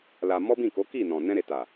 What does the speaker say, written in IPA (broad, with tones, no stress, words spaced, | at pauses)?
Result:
la˧ mɔ˦bĩ˦˨ko˨˦ ki˦˨nɔ̃˨ nɛ̃˧ɾe˨ta˨